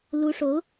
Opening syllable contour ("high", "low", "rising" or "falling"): rising